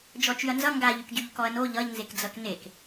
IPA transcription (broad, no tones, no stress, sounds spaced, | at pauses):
d͡ʒ ɔ t͡ʃ y ɐ̯ n z ʌ ŋ ɡ a ʎ y k ɟ y ʎ k ɔ ɐ̯ n o ʎ ʌ ʎ n z e k d͡z ʌ k n e k